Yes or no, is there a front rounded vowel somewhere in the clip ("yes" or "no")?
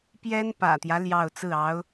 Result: no